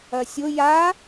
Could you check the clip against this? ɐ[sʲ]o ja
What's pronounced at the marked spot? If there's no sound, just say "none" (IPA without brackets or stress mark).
sʲ